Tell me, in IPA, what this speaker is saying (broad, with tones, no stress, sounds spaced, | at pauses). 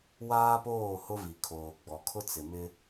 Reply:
w aː˦ p oː˦˨ h ʊ˦ v i˨ kʰ oː˨ ɡ͡b ɔ˨ kʰ ʊ˦ t͡s ɪ˨ m ɪ˦